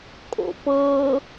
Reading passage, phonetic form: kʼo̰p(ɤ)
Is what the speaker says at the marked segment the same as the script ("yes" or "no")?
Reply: yes